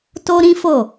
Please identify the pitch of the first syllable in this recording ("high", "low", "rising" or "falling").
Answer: high